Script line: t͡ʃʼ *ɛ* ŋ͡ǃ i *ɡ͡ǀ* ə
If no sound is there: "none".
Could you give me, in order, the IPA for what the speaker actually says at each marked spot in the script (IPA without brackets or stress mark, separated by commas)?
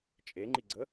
e, ɡ͡ǀ